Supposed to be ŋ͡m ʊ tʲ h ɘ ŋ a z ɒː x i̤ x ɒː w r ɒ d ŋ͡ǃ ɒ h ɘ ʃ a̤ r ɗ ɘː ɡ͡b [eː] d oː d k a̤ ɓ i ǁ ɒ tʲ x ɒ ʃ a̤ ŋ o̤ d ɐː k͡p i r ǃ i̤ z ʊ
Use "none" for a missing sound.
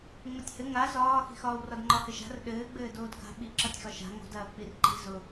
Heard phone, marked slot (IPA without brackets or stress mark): ɘː